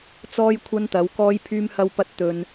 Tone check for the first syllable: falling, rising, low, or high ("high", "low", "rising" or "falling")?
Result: high